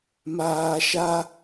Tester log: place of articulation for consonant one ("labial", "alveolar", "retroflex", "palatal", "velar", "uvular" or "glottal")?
labial